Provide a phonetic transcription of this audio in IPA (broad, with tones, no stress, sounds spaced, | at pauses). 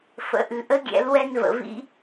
f ə̰˩ ʔ ʉ˩ ʔ ə˧˥ ɡʲ ɛ̰˩˧ l w ɛ˧ n v ə̰˩ v ḭ˧